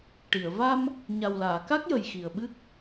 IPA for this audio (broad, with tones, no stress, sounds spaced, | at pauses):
ʈ i˨˩˨ ə̯ v a˧ m | ɲ a˨˩ w l aː˨˩˨ k a˦˥ k̚ j ə˨˩ j x i˨˩ ə̯ ɓ ɨ˦˥ k̚